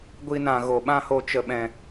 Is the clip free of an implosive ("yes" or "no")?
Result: no